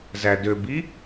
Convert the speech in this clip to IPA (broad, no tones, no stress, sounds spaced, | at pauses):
z æ d ø b i